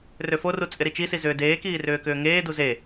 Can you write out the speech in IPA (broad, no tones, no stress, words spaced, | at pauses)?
røforu t͡sʼɪɾit͡ʃisi zʏːdeːkiː rʏːkʏːŋeːdu ze